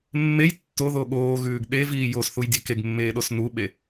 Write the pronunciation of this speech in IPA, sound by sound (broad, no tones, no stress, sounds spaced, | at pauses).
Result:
mː e j tː o ð o ɠ oː ɣ ʉː ɡ ɗ e v iː j o s θ u j dʲ e k e ɡ mː eː ɗ o s n u ɓ e